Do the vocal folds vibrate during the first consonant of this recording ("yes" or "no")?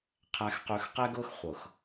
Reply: no